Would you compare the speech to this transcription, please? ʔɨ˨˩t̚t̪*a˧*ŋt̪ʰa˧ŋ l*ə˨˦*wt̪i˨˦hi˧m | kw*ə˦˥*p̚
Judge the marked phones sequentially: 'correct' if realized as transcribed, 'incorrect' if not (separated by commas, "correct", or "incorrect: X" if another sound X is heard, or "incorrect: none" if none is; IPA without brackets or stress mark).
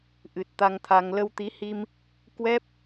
correct, incorrect: ə˧, incorrect: ɛ˦˥